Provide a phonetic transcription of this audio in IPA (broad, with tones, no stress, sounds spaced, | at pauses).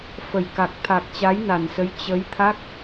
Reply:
f ə˨˩ j k a˨˩ k̚ t̪ʰ a˨˩ k̚ t͡ɕ a˨˦ j n a˨˩ n s ə˨˦ j t͡ɕ ə˨˦ j t̪ʰ a˦˥ k̚